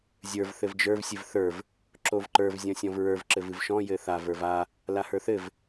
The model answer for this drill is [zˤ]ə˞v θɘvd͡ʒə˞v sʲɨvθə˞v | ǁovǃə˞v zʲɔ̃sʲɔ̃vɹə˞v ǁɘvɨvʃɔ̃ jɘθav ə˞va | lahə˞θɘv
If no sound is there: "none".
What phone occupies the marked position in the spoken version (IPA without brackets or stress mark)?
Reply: zʲ